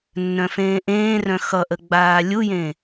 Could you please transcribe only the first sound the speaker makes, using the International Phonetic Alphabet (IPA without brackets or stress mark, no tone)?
nː